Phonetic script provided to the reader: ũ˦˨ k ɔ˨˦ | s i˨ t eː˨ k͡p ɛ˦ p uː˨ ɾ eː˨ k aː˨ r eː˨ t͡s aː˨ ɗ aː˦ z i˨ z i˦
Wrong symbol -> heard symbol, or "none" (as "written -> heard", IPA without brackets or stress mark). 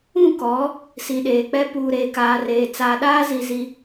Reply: t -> ɗ